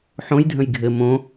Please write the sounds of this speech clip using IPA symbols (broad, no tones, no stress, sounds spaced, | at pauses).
ħ õ j dʱ ə̃ j ɡʱ ɘ m õ